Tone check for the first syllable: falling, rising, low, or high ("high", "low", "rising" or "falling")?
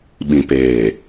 low